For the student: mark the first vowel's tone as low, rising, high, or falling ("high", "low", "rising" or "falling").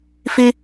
high